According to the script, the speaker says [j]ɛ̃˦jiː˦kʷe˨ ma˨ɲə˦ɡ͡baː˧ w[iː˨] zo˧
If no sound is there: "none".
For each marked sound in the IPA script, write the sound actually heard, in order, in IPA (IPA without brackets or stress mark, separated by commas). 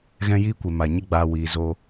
ɣ, iː˨